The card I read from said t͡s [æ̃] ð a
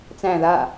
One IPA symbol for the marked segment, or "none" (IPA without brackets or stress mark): æ̃